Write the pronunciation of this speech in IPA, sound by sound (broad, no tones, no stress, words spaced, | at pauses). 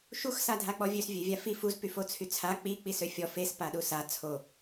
ʃux sadʱak͡pɔvʲøs vʲøvʲafi fuz pyfot͡sʰyt͡sʰa k͡pi k͡pisøfʲɔ fes paɗusa t͡sʰo